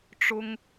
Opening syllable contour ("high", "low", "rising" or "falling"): high